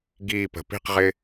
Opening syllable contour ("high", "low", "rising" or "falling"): falling